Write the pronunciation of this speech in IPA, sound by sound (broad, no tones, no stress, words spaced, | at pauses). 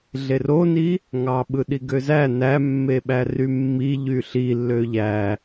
ɮeroni | ŋɑ ɓɯɗiɡøzæ næmːeɓæ rymːi ʎyɬi lːøʎæ